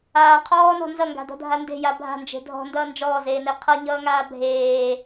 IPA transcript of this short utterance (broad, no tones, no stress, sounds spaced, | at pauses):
aː qʰ ɔː n ɔ̤ n z ʌ ŋ ɡ a̤ d ɔ̤ dʱ a n d e̤ j a bʱ a̤ n d͡ʒ e̤ dʱ ɔ̤ n d ʌː n d͡ʒ ɔː z eː n e qʰ ʌ ɲ ʌː ŋ aː bʱ eː